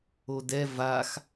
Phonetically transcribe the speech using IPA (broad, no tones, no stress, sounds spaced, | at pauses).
o d ɛ v a x